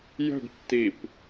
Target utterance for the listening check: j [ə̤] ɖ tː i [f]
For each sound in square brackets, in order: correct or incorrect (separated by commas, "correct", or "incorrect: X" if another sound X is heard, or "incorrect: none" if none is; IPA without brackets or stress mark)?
correct, incorrect: p